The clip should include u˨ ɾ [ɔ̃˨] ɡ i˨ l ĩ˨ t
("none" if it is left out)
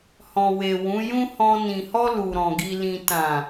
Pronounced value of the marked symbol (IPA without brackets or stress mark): ɔ̃˨